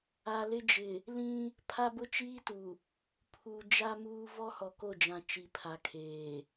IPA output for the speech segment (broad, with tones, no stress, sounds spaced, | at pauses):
a˨ l ɪ˦ d͡ʒ ɪ˨ | l ĩ˦ | pʰ a˦ b ʊ˦ t͡ʃ iː˦ t u˨ | pʰ u˨ d͡ʒ a˦ m uː˦ v ɔ˦ h ɔ˨ k o˦˨ d͡ʒ ã˨ t͡ʃ i˨ pʰ a˨ kʰ eː˨